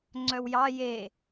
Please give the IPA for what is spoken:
ŋ͡ǀ œ w j ɑ j e

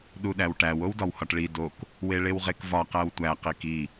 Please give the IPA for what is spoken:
ɗ u ɗ æ w ʈ æ w o w d ɒ w h ɒ ʈ ɭ i d o k | w e ɭ e w ʁ e k v ɒ q æ w tʷ æ q i k i

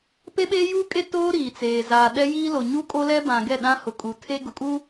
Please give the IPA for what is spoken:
p e˦ ɓ eː˦ j uː˦ kʼ e˦ t oː˦ ɾ iː˨ t͡s eː˨ z aː˨ ɗ ɛ˦ j iː˦ l o˨ ɲ u˦ kʼ o˦ l ɛ˦ b ã˨ ɡ ɛ˦˨ ɗ ã˦ h ʊ˨ kʼ u˨ tʰ e˦ ɡ ʊ˨ kʼ u˦

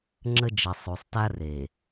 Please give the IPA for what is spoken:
ŋ͡ǁ ə˦ d͡ʒ ə˨ sˤ u˨ sˤ t a˦ r e˨

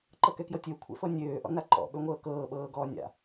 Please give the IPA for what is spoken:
ǃ ɤ k ɛ k j ɤ tʲ ø kʷʰ ɛ̰ f ɤ nʲ øː ʔ ɔ̰ n a ǃ ɔ̰ ɓ ø ŋʷ ɤː k ɤː ɓ ɤː ɡ ɔː nʲ a̰

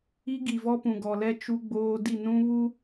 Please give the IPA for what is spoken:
i˦ ɡ i˨ v ɔ˦ p ũ˨ ɡ ɔ˨ l ɛ˦ t͡ʃ u˦ ɡ͡b oː˦ d i˦˨ n ũ˦ β u˦

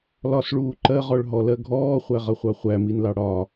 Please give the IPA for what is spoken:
l ɒ s ɭ uː ǃ ɜ ʁ ɔ ɭ ɦ ɔ l ɜ ɡʱ ɔː χʷ æ ʁ ʌ χʷ ɑ χʷ æ m i n l ɑ ɽ ɒ

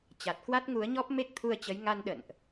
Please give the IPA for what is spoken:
t͡ɕ a˨˩ t̚ k w a˦˥ t̚ ŋ u˨˦ ə̯ ɲ ɔ˦˥ p̚ m e˦˥ k̚ t̪ʰ u˧ ə̯ t͡ɕ ə˨˦ j ŋ a˧ n ɗ ə̰˧˨ n ʔ

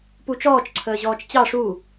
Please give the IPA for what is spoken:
p u t͡ʃ ɔː t͡ʃ ǀʰ əː ʑ ɔː t͡ʃ t͡ɕ ɑ ʂ u

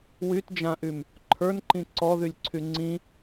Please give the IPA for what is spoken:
w y t d͡ʒ ã ʔ y m | ǃʰ ə˞ n ǃ ĩ ǀ ɔ ð y lʲ ǀʰ y ŋ͡ǀ ĩ

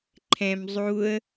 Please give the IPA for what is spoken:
ǃʰ ɛ̃ m zˤ u ə̯

